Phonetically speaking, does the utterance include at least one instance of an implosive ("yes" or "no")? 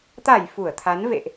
no